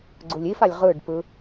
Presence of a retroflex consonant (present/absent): present